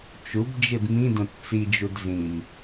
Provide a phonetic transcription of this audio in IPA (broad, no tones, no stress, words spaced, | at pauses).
t͡ʃubd͡ʒɯd mĩdõt t͡sid͡ʒud zĩm